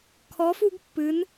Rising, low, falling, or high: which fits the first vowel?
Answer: rising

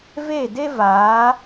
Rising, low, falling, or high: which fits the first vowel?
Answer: falling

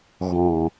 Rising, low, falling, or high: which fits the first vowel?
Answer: low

